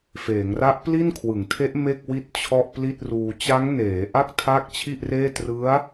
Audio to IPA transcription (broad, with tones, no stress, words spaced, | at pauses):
feː˩˦ŋra˦˥ʔ pli˥˩nkʰwɯ˩˦ŋtʰe˦˥ʔ me˥˩k̚ wi˥˩t̚t͡ɕʰɔ˥˩ʔpli˥˩t̚ruː˧ t͡ɕa˦˥ŋneː˩˦ʔa˥˩k̚ tʰa˥˩k̚ t͡ɕʰi˥˩ʔreː˥˩ trɯ˦˥a̯